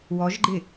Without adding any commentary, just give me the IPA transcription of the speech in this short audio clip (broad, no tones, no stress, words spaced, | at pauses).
wɔʒɡ͡ǃɪ